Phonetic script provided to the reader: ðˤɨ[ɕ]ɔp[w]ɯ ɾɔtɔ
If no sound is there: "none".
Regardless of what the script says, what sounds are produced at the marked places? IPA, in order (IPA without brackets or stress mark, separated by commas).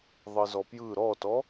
z, j